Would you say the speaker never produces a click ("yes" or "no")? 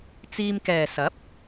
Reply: yes